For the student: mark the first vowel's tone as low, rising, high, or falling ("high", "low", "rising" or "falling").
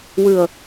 low